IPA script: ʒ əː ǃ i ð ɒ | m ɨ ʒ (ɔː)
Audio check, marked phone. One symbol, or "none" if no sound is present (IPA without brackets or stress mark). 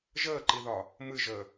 əː